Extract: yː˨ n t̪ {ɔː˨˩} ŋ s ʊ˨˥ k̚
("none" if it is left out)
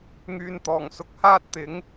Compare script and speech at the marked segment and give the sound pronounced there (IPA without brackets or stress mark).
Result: ɔː˨˩